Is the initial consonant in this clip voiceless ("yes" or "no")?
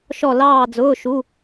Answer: yes